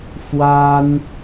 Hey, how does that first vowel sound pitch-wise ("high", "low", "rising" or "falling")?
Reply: high